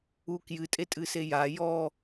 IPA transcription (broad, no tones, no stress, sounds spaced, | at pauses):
u k j ɨ tʼ e tʼ ɨ s e j a j ɔ